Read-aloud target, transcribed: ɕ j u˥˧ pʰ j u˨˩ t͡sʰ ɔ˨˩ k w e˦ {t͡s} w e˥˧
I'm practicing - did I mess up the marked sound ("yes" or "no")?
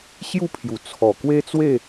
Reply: no